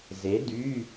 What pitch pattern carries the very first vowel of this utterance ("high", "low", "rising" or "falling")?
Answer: rising